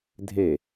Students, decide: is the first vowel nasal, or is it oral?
oral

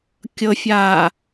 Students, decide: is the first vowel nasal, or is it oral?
oral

